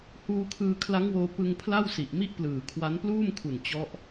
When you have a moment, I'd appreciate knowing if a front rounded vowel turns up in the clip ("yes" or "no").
no